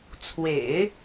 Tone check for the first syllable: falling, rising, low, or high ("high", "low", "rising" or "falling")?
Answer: low